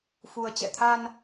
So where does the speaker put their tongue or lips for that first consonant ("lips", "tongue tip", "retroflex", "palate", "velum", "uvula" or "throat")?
lips